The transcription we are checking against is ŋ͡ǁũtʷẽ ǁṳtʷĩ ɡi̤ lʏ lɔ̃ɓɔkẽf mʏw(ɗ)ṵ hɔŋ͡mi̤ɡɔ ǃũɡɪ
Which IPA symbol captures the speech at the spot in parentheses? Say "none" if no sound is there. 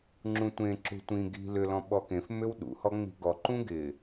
ɗ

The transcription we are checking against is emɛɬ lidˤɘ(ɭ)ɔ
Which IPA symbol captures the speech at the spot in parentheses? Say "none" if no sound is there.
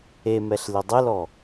l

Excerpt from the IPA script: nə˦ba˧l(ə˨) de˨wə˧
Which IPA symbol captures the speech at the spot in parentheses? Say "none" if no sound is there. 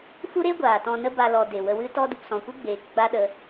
ɔ˨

